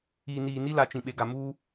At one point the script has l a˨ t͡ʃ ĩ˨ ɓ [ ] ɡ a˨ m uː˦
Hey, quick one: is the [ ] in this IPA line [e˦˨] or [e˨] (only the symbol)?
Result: e˨